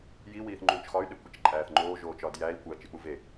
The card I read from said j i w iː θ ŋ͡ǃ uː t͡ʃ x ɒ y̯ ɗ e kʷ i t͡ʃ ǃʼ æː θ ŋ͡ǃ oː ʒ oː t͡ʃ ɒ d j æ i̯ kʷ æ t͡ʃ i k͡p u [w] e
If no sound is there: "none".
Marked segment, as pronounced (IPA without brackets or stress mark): v